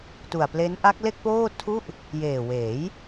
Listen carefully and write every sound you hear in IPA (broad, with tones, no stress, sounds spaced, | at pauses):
t u˨˩ a̯ p l e˦˥ n ʔ a˦˥ k̚ l e˥˩ k̚ p oː˥˩ tʰ u˥˩ ʔ | j eː˨˩ w eː˩˦ j